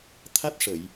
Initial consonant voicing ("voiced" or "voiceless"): voiceless